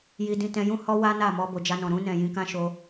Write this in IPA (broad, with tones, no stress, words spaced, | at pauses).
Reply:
ji˧dĩ˧ tɛ̃˧jũ˦ hɔ˦ wa˦na˦˨mɔ˧ bo˨d͡ʒa˧nɔ̃˨ ɾũ˧nɛ̃˨ jĩ˧kã˦ʃo˧